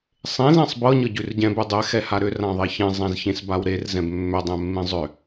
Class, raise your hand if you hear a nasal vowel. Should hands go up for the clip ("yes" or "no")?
yes